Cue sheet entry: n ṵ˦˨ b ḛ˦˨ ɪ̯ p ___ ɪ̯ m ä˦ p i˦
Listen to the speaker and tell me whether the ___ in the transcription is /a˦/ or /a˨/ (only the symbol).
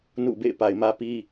a˨